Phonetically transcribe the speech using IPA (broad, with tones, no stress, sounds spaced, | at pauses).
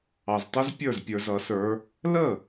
ɑ˨ z tˤ ə˦˥ z pʲ ə˞˥˩ z pʲ ə˞˨ z ʌ˨˩˦ s ə˞˨˦ | l ə˥˩